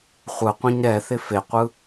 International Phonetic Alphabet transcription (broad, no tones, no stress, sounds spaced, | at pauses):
χʷ ɯ qʷ ĩ ɲ ɾ ɛ θ ɪ f e qʷ ɯ